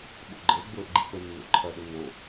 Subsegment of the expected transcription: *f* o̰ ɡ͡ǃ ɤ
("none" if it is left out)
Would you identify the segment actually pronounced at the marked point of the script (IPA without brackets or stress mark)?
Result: ɓ